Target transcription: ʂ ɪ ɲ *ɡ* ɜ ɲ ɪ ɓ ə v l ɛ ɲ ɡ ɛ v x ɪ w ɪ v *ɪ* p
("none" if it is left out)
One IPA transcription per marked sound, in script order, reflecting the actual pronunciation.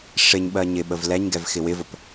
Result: ɓ, ə

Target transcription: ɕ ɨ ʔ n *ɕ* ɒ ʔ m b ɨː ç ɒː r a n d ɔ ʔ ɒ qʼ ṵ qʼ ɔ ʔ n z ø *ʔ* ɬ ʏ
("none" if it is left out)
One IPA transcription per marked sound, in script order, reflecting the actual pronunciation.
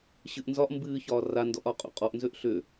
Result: z, ʔ

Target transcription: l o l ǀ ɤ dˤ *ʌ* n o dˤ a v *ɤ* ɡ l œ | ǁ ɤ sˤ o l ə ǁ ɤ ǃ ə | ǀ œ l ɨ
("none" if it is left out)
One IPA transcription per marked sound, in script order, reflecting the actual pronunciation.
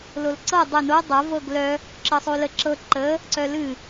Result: ə, ɤ

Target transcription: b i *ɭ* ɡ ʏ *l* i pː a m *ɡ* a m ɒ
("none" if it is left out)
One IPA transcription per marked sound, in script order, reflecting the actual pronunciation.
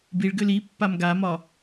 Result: ɭ, l, ɡ

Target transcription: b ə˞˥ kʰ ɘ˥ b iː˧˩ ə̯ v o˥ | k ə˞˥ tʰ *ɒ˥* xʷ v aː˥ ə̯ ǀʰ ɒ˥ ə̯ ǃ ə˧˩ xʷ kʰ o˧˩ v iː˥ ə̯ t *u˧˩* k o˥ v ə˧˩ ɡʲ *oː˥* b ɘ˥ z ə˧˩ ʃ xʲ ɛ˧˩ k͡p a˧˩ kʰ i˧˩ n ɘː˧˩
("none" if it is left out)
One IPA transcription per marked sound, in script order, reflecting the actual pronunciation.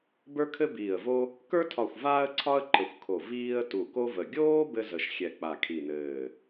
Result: ɒ˧˩, u˧˩, oː˥

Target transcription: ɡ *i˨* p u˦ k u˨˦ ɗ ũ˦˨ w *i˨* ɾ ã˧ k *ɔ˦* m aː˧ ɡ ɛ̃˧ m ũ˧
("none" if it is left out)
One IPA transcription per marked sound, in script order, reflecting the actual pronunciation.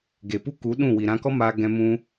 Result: e˨, i˨, ɔ˦

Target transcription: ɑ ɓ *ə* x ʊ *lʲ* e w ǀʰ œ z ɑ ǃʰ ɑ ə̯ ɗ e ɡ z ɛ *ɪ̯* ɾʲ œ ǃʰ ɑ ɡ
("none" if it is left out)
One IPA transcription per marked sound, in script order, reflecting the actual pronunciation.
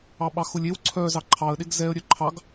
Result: ɑ, lʲ, ə̯

